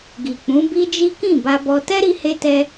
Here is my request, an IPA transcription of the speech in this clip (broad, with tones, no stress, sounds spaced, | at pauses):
ɡ i˨ k͡p ũ˨˦ b i˦ d͡ʒ i˦ k ĩ˦˨ b a˧ b ɔ˧ t ɛ˦ ɾ i˧ h e˧ t ɛ˧